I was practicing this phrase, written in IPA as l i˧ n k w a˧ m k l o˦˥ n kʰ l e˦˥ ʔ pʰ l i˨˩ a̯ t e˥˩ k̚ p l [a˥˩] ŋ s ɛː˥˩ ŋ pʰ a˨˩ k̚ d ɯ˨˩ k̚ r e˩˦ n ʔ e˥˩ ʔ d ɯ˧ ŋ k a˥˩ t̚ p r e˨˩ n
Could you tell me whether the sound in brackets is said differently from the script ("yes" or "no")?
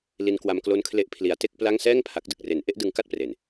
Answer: no